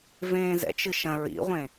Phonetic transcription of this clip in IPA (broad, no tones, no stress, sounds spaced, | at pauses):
v ẽː z ɛ̰ t͡ʃ ɨ ʃ ɐ̃ ɹ ḭ ʁʷ ẽ